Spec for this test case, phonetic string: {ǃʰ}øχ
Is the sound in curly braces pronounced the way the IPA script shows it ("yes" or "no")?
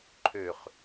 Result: yes